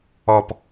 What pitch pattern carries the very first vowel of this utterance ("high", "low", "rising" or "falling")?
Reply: low